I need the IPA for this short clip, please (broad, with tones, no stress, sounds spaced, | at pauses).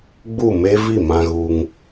ɡ͡b u˦˨ m e˦ v i˦˨ m ã˧ ɣ u˧ ŋ